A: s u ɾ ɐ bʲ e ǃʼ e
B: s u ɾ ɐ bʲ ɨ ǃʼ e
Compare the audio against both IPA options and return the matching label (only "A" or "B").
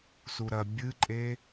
B